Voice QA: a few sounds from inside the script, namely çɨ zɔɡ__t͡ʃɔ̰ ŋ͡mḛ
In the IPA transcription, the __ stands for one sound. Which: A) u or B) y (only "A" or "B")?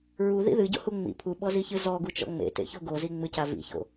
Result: A